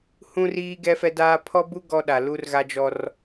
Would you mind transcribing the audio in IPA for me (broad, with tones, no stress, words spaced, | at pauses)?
hũ˦riː˦ ɡɛ˦fɛ˦daː˦ pʰɔ˦bu˦ ɡɔ˦ɗa˨ lu˦rɣa˦d͡ʒɔ˦r